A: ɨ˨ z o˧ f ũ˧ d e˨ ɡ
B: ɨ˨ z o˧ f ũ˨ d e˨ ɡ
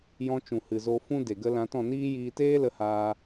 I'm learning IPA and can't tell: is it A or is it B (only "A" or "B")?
A